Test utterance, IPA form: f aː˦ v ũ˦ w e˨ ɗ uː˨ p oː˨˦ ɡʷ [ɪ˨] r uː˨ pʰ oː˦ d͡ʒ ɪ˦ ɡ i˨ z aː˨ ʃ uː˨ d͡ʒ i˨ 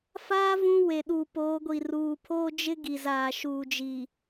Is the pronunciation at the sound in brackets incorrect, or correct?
incorrect